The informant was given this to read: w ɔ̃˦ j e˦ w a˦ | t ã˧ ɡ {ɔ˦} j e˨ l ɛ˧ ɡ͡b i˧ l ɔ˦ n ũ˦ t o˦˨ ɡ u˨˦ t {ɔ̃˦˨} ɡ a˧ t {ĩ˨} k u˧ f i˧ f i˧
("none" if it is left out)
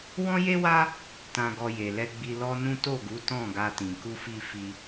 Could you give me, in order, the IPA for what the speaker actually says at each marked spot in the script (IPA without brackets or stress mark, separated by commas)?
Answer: ɔ˧, ɔ̃˦˨, ĩ˨